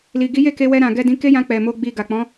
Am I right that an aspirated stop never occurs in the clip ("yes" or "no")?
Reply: yes